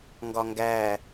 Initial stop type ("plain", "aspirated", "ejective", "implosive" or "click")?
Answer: plain